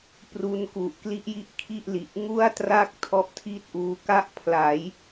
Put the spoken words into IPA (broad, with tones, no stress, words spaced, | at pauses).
pru˧nku˨˩ʔkli˥˩ʔji˥˩ʔ kʰi˥˩ʔli˨˩ʔ ŋu˥˩a̯tra˥˩k̚ tʰɔ˦˥ʔtʰi˥˩t̚ʔuː˧ ka˥˩ʔpʰla˩˦j